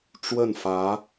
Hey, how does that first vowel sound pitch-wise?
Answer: falling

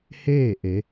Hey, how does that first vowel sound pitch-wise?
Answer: falling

